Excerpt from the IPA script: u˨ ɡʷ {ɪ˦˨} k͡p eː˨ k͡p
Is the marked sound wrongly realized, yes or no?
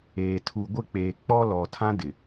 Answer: no